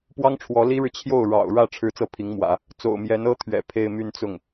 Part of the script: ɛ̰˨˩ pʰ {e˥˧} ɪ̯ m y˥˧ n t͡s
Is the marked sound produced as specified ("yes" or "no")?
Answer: yes